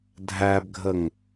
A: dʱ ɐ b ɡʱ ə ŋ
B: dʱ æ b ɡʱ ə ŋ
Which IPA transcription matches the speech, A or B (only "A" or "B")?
B